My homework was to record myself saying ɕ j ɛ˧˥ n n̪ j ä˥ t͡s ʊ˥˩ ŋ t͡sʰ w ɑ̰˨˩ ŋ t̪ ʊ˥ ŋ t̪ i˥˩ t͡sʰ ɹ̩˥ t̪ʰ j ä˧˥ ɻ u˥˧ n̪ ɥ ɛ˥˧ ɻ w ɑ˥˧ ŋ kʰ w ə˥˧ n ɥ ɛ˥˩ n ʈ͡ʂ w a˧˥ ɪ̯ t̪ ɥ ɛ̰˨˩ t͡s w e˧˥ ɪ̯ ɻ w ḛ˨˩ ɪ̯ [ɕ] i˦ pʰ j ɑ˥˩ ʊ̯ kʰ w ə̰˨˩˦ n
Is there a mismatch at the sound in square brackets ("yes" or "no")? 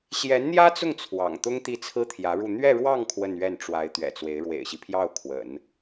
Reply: no